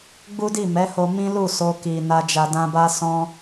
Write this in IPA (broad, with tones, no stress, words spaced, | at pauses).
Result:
ɡ͡bu˦di˦˨mɛ˨˦ho˧ mĩ˦lu˦˨ so˧ki˨ na˧d͡ʒa˧ dã˧ba˦ sɔ̃˦